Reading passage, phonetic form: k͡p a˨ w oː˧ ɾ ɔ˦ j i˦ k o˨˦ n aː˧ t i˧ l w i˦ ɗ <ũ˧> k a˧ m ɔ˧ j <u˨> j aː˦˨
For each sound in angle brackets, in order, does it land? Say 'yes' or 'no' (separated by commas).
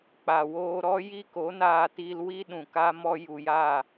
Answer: no, yes